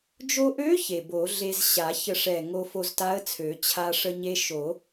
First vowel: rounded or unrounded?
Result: rounded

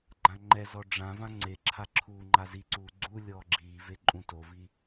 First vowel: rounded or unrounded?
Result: unrounded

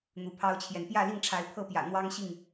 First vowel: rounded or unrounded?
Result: rounded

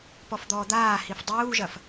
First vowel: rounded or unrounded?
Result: rounded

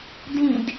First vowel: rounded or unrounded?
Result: unrounded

